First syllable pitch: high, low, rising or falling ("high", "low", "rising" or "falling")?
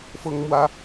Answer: high